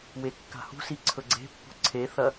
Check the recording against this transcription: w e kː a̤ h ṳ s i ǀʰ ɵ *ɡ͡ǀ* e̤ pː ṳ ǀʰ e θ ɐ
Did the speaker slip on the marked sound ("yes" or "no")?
no